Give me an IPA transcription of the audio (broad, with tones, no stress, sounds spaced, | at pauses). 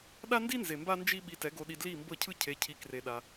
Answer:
ɗ a˦ n d i˦ n z e˨ m b a˦ n d͡ʒ i˦ ɓ i˧ t ɛ˨˦ ɡ o˧ ɗ i˧ d l i˦˨ m b ɤ˦˨ cʰ ɯ˦ cʰ e˧ cʰ i˧ k r e˧ ɗ a˧